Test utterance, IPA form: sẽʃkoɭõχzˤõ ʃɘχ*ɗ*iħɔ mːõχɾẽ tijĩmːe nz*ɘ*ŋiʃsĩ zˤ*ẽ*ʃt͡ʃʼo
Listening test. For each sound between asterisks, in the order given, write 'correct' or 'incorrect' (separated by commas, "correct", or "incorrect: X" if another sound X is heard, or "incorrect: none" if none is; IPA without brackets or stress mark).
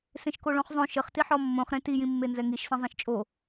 incorrect: t, incorrect: ɛ, correct